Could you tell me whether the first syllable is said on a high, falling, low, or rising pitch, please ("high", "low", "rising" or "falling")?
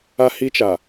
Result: high